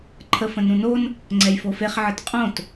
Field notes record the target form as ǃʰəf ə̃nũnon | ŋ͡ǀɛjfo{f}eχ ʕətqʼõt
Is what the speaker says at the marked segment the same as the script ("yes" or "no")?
yes